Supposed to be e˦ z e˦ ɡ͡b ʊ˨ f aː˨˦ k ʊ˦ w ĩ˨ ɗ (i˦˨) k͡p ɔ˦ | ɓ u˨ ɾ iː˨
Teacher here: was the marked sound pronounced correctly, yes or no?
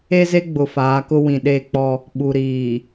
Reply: no